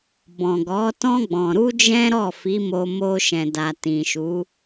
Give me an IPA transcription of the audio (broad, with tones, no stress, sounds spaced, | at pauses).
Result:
b ɔ̃˨ ɡ ɔ˨˦ t ɔ̃˦ ɡ͡b ɔ̃˧ ɾ u˦ d͡ʒ ɛ̃˦ ɾ ɔ˦˨ f i˨˦ m o˧ m o˧ ʃ ɛ̃˨ d a˨ t ĩ˨ ʃ u˨˦